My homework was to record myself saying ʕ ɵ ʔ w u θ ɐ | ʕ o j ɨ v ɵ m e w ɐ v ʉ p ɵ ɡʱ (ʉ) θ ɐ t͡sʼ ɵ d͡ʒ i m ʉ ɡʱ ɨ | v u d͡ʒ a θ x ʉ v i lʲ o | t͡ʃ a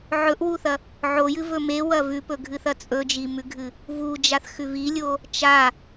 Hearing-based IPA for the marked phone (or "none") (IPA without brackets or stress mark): ɨ